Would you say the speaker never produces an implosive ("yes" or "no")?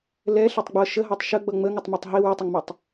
yes